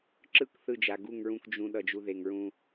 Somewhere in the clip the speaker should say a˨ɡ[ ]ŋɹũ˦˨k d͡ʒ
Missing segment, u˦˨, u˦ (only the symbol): u˦˨